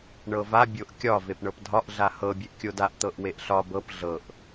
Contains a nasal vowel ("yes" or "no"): no